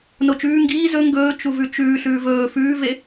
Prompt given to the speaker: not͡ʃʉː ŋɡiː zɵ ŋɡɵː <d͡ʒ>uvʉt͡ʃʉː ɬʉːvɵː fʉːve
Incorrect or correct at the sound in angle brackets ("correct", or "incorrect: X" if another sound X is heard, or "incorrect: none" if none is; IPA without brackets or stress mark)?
incorrect: t͡ʃ